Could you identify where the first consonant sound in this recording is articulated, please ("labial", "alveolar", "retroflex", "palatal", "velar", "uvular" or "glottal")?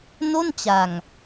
alveolar